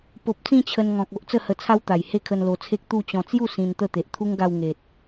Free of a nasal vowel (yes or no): no